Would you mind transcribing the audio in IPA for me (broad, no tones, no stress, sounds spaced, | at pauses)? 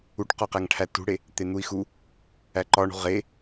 u ʈ q ɒ q æ ŋ ʈʰ æ t ṳ ɽ e | t̪ e n̪ u i̯ x u | æ ǃ ɒ ɳ ṳ ʁ e